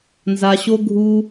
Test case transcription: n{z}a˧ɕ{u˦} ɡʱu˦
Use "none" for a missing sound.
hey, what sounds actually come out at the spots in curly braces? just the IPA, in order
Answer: z, o˦

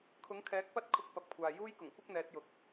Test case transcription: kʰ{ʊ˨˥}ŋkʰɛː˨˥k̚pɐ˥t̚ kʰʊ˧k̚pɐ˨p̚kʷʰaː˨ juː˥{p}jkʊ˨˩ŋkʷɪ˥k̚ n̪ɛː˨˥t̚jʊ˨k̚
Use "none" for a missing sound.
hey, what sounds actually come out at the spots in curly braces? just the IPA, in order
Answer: ʊ˨˥, none

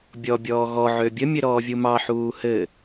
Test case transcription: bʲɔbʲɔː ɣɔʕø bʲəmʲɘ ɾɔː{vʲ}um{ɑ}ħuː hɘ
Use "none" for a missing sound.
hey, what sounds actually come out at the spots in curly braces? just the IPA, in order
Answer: vʲ, ɑ

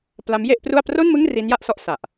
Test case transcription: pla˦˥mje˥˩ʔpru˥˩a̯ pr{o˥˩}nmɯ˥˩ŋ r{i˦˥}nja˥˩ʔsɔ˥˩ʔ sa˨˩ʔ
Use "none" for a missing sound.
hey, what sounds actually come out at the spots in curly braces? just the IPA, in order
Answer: o˥˩, i˦˥

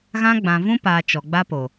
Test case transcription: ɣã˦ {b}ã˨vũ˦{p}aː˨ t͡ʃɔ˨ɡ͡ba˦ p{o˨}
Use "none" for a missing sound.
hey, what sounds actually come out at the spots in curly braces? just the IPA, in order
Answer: ɡ͡b, p, o˨

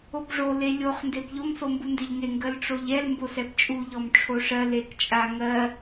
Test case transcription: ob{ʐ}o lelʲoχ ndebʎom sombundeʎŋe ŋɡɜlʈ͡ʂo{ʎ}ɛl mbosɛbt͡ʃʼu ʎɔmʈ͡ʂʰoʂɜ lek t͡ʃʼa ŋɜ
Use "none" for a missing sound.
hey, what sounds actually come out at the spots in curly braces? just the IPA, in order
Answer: ʐ, ʎ

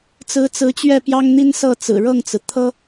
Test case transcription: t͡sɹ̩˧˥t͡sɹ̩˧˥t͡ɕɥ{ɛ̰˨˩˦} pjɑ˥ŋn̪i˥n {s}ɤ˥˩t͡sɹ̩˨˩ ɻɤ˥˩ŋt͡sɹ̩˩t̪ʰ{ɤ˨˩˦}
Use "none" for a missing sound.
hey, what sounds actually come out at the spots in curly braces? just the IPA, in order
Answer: ɛ˥˩, s, ɤ˥

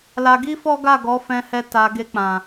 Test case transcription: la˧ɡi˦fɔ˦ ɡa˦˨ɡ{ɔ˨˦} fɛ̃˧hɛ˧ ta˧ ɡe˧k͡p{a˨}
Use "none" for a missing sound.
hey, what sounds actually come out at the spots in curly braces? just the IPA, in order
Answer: ɔ˨˦, ã˨

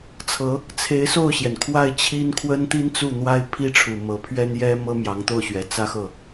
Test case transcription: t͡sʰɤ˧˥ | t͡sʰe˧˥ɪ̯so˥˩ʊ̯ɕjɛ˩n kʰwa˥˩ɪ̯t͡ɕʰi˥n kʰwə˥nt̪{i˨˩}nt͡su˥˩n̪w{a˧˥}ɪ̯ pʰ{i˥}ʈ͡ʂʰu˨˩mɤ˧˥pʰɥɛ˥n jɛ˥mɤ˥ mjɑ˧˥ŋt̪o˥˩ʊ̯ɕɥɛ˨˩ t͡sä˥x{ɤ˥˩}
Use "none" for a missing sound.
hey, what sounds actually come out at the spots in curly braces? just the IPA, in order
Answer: i˥, a˥, i˥, ɤ˥˩

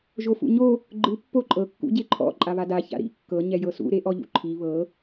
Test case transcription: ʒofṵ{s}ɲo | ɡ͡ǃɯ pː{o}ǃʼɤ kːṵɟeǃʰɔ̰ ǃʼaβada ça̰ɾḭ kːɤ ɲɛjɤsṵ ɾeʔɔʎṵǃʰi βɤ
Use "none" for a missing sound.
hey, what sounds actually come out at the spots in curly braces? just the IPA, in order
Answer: none, o

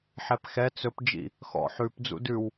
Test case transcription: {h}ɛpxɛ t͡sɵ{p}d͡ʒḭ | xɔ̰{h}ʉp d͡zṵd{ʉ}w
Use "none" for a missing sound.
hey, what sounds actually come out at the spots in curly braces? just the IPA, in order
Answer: ħ, p, ħ, ʉ

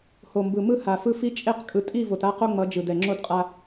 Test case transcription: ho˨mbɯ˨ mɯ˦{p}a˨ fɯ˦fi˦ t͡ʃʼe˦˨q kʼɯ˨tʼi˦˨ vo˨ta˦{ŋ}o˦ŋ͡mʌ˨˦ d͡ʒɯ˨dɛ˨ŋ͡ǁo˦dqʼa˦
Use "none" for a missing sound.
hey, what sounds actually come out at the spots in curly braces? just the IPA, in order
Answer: h, q

